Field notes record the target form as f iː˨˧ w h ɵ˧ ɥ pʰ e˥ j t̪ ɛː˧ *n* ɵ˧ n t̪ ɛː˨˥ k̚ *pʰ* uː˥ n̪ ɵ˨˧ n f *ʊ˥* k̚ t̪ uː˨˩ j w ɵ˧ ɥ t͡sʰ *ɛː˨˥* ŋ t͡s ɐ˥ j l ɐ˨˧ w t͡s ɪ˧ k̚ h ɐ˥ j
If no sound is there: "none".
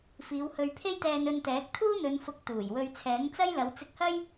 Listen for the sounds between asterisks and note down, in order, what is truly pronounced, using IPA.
n, t̪ʰ, ʊ˨˥, ɛː˨˥

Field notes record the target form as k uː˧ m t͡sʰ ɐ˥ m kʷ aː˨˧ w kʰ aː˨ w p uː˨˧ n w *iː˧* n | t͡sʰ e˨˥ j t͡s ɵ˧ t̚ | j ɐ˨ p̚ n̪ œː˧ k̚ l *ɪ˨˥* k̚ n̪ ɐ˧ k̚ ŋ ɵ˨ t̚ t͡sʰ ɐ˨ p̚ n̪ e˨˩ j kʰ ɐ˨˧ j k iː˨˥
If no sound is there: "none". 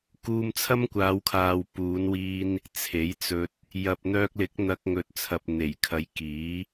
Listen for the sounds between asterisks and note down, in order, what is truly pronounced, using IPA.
iː˧, ɪ˨˥

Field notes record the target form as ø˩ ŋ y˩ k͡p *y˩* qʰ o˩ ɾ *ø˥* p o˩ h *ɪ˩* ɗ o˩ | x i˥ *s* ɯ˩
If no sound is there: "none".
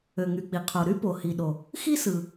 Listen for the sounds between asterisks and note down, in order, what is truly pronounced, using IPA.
i˩, y˥, i˩, s

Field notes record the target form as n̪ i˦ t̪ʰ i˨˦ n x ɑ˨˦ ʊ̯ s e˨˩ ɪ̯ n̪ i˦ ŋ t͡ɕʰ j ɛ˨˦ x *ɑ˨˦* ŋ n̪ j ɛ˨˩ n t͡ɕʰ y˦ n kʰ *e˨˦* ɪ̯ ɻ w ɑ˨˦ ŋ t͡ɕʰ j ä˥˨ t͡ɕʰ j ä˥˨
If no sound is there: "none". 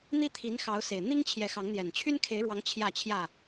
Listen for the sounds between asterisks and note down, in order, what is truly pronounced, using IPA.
ɑ˨˦, e˨˦

